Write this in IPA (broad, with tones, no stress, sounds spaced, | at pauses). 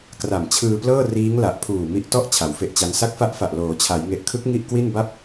k r a˨˩ m t͡ɕʰ ɯː˧ p l ɤː˥˩ r iː˦˥ ŋ l a˨˩ ʔ pʰ uː˨˩ m i˦˥ ʔ t ɔ˥˩ ʔ t͡ɕʰ a˩˦ w f e˦˥ ʔ t͡ɕ a˦˥ n s a˦˥ k̚ f a˦˥ ʔ f a˨˩ ʔ l oː˩˦ t͡ɕʰ a˩˦ j ŋ e˨˩ ʔ kʰ ɯ˦˥ k̚ ŋ i˥˩ ʔ k w i˥˩ n b a˥˩ p̚